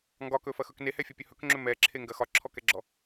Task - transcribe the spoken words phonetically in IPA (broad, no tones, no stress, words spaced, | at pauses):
ŋɡɒkɵfɐxɵk nehɛfʲɔpʲɵ hɵkŋ͡ǁɵ mɛǁʰeŋɡɐ xɒǁʰɔkɛɡ͡ǁɔ